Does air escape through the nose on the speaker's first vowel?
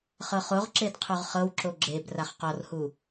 no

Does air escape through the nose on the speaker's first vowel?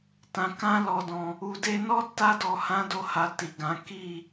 yes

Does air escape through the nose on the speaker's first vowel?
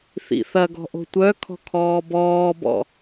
no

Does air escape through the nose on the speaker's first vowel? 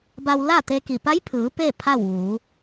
no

